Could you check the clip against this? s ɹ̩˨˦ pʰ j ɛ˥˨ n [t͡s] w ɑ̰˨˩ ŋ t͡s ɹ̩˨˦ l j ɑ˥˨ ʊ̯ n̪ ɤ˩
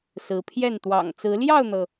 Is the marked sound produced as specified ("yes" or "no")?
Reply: no